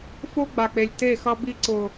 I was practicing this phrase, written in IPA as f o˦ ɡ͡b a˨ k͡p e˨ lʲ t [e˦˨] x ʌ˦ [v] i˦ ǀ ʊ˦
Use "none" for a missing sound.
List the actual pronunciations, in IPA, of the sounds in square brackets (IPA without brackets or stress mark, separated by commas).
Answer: e˦˨, b